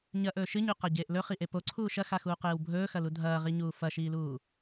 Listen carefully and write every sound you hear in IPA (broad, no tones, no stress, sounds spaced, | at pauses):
ɲ ɐ ʔ ɵː ʃ ɨ ɲ ʉ q a ɟ eː ʔ l ɵ χ i ʔ e p o ǀʰ uː ʃ ɐ x a x uː q eː w bʱ ɵː x ɐ l u dʱ ɐː ʁ i ɲ uː f ɐ ʃ iː l uː